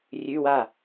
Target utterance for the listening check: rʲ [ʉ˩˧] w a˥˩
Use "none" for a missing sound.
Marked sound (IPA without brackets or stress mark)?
ʉ˧˥˧